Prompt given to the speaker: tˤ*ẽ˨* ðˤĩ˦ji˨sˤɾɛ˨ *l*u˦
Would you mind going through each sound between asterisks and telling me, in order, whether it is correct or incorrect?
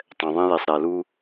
incorrect, correct

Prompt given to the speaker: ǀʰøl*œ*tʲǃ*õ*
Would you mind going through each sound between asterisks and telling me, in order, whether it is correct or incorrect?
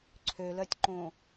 correct, correct

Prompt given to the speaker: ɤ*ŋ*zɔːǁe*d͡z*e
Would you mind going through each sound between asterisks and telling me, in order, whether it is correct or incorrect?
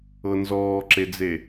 incorrect, correct

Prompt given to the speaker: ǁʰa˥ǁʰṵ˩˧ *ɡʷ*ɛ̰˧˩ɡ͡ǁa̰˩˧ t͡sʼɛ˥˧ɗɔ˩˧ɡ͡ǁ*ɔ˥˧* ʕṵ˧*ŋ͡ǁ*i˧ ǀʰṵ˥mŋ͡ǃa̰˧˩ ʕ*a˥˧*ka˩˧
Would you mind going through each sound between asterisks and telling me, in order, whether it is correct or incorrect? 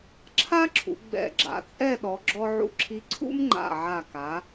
incorrect, incorrect, incorrect, incorrect

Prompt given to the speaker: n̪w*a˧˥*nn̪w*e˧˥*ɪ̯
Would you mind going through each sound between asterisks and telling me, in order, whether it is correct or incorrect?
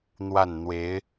incorrect, correct

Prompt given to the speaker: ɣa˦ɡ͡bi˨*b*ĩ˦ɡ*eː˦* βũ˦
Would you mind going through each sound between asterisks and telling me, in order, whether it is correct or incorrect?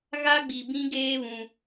correct, correct

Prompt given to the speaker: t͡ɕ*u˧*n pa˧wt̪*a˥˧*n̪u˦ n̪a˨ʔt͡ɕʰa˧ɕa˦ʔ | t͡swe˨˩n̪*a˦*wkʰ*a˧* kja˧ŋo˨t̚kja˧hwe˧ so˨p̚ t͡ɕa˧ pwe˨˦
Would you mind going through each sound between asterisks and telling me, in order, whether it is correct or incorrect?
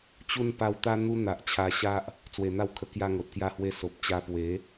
correct, incorrect, incorrect, incorrect

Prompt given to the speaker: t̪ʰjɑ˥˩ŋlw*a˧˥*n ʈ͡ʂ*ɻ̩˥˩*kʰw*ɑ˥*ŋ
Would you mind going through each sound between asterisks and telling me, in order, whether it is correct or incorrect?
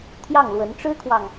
incorrect, incorrect, incorrect

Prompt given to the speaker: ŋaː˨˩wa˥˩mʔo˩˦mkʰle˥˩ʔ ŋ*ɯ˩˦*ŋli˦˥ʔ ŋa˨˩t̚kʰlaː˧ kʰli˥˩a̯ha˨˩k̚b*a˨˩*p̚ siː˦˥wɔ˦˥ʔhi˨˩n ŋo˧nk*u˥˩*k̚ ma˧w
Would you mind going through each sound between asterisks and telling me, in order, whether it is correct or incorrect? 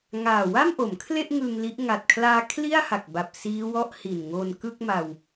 incorrect, correct, incorrect

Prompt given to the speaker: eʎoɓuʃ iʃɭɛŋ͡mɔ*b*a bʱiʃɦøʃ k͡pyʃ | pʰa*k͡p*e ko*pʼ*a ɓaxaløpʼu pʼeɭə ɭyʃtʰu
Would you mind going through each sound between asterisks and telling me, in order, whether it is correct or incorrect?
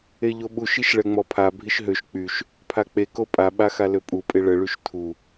incorrect, correct, correct

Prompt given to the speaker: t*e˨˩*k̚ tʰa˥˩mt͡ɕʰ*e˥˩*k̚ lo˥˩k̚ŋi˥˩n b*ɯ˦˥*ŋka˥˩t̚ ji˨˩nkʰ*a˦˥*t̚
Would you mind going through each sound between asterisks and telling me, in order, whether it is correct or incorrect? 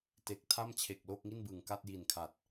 correct, incorrect, incorrect, incorrect

